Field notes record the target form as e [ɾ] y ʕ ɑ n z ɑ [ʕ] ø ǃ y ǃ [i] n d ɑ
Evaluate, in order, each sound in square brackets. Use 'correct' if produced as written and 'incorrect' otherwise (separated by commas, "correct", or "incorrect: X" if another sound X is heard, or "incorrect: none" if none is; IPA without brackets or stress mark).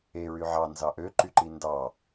incorrect: ɹ, incorrect: ʔ, correct